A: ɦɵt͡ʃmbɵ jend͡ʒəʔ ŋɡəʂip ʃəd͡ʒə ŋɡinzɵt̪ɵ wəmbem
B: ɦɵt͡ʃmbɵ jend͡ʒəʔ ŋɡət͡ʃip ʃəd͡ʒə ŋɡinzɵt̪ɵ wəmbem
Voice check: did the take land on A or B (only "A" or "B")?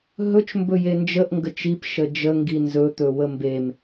B